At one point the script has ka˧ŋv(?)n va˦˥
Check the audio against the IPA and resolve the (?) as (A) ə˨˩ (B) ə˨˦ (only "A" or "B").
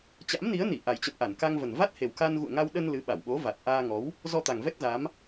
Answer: A